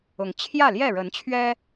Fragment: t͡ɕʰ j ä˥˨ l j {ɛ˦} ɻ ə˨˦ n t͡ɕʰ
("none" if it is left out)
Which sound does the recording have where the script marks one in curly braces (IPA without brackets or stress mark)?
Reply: ɛ˥˨